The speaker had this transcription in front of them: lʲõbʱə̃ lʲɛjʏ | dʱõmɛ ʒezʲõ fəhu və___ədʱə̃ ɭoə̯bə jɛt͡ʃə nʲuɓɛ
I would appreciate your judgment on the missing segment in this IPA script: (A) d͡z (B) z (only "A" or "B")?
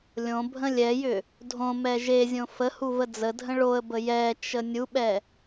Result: A